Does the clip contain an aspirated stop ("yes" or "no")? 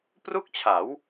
yes